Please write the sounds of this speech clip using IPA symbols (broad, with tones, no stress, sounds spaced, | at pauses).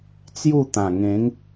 t͡s j u˥˧ t̪ ã˨˩ ŋ ẽ˨˦ ŋ